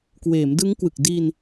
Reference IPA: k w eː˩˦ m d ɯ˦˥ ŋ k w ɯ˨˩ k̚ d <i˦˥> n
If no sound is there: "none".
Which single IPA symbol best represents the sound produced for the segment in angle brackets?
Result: i˧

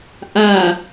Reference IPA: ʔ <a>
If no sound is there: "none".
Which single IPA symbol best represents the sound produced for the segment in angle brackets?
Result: a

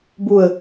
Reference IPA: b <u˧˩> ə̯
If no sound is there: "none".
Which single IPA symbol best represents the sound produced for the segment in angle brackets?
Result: u˧˩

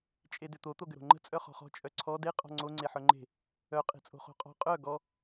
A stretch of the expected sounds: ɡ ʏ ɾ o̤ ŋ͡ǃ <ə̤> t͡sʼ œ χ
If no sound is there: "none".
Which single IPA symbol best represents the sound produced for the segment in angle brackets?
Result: ə̤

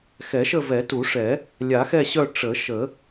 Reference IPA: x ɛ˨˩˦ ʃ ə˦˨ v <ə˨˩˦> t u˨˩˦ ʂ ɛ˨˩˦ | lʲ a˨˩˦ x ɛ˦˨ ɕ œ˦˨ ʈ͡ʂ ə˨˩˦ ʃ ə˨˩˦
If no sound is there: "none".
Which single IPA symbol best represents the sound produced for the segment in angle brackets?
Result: ɛ˨˩˦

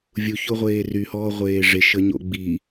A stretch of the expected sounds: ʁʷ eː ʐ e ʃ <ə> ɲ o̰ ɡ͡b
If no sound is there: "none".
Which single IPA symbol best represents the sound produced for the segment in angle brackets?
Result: ə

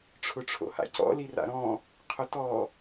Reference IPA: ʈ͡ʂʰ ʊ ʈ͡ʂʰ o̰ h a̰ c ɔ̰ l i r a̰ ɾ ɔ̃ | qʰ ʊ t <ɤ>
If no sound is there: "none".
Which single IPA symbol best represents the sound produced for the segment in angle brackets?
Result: ɔ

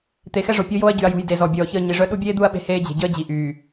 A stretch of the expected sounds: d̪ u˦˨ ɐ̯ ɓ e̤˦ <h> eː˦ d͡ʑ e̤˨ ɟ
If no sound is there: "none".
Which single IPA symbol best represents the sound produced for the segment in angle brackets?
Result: h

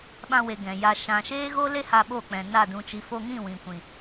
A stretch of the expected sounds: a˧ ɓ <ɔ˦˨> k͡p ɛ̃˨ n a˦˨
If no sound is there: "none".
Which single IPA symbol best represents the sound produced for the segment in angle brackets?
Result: o˦˨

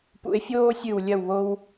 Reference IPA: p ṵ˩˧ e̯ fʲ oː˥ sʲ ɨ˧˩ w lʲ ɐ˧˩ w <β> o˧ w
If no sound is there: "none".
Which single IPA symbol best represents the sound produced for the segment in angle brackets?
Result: β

